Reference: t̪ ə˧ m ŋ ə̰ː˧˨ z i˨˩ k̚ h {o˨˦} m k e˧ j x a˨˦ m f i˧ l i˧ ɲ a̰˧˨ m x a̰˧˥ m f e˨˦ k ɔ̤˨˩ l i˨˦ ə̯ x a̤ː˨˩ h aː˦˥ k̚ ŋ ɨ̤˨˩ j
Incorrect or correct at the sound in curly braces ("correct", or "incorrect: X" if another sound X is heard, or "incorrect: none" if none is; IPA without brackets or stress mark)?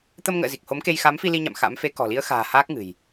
correct